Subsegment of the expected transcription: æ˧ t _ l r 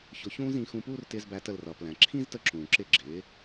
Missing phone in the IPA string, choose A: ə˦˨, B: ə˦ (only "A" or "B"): A